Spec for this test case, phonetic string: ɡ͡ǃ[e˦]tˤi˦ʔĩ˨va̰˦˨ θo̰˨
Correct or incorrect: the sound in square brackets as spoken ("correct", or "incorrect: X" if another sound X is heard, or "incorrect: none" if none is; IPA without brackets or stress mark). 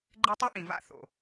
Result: correct